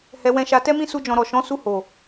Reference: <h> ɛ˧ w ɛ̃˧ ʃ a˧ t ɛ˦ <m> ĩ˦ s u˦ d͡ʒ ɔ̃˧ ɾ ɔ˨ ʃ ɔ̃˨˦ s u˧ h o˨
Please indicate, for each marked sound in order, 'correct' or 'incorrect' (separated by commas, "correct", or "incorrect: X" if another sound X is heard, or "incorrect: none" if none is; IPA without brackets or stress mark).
correct, correct